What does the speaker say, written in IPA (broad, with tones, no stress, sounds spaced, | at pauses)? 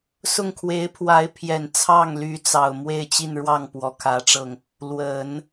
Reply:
s ʊ˥˩ ŋ kʰ w e˧˥ ɪ̯ pʰ w a˧˥ ɪ̯ pʰ j ɛ˨˩ n t͡sʰ ɑ˥˩ ŋ l y˧˥ t͡s ɑ˨˩ ʊ̯ m w e˥˧ ɪ̯ t͡ɕ i˥˧ n ɻ w ɑ˥˩ ŋ p w ɔ˧˥ kʰ ä˧˥ ʈ͡ʂ ɤ˧ ŋ | l w ə˨˩˦ n